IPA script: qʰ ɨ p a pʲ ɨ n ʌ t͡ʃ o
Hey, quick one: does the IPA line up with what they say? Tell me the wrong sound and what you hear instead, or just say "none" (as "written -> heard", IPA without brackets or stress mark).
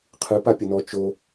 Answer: ʌ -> ɔ